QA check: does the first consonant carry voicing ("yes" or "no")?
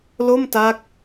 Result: yes